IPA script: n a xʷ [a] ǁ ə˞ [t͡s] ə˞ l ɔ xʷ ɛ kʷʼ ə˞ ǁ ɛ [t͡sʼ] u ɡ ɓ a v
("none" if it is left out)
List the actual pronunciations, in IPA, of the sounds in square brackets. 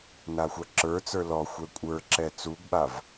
a, t͡s, t͡s

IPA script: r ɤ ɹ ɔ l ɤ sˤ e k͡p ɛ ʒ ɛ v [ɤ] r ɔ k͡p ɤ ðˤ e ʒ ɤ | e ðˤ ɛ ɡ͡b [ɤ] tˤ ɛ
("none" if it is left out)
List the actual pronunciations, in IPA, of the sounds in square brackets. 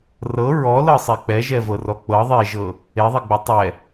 ɤ, ɤ

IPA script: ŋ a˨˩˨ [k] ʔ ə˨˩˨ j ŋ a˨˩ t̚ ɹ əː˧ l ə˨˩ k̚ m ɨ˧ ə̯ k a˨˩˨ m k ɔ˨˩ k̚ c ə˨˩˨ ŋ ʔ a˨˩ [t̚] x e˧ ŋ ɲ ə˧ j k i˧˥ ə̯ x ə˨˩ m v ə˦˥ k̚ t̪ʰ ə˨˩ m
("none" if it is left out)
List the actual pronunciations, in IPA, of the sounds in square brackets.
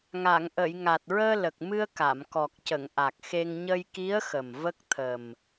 ŋ, k̚

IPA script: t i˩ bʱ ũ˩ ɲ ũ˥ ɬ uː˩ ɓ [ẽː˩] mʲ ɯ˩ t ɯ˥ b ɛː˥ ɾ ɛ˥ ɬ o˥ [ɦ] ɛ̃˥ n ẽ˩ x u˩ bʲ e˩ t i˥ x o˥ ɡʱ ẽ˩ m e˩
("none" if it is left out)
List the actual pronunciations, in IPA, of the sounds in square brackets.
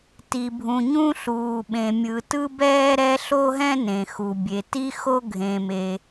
ẽ˩, ɦ

